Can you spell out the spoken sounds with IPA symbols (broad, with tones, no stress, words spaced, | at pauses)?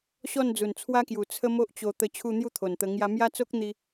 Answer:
ɕɔ˥˧nd͡zu˨˩nt͡sʰwa˦kju˨˩ t͡sʰə˦mo˦ʔt͡ɕo˧t̪ə˧ t͡ɕʰu˥˧n̪ju˥˧t̪ʰo˨˩nt̪ə˧ ŋja˧mja˦t͡so˦k̚n̪i˧